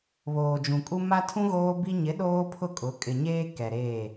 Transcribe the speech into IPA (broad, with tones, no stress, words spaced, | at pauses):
βoː˨d͡ʒũ˨kʼu˦ ma˦tʰũ˦ ɣoː˦bi˦ ɲɪ˨˦ ɗoː˦pʰʊ˦˨kʼʊ˨˦ kʼɪ˨ɲeː˦ kɛ˨ɾeː˦˨